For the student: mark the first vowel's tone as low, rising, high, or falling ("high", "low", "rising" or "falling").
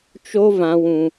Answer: high